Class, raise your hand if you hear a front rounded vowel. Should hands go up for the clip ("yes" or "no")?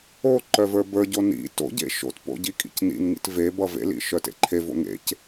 yes